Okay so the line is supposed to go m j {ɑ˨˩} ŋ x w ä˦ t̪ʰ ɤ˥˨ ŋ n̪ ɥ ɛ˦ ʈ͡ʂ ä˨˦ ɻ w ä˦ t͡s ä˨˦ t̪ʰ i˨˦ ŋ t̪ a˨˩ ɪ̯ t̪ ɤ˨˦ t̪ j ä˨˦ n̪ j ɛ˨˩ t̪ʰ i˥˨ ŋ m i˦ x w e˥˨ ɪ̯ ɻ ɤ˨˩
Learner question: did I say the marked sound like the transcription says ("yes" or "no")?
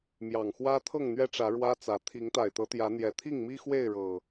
yes